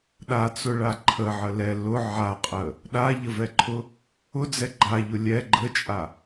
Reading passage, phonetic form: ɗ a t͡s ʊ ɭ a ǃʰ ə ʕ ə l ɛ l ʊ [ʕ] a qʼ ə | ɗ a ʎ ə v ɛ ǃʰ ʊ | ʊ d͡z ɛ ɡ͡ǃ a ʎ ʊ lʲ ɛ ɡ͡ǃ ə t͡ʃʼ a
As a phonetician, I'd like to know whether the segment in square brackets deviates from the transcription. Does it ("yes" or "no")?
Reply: no